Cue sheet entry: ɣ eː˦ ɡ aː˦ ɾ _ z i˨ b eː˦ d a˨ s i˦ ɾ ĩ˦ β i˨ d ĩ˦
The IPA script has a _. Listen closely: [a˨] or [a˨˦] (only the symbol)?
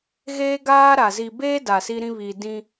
a˨